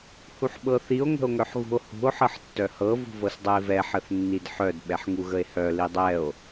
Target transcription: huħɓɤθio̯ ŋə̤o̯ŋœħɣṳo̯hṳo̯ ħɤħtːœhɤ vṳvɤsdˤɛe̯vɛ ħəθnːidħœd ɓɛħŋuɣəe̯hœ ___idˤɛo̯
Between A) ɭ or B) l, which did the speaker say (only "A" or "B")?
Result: B